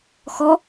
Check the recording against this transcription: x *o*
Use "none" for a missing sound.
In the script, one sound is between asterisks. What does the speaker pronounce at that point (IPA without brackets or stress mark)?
ɔ